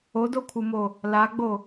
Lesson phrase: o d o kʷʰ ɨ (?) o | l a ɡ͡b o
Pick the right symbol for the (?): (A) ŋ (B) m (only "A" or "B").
B